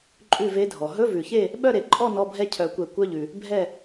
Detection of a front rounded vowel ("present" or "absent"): present